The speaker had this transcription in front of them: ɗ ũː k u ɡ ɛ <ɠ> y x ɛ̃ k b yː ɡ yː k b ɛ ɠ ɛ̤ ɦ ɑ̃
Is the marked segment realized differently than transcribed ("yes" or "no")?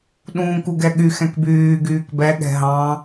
no